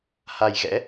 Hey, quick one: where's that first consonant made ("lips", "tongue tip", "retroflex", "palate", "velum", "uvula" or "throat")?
throat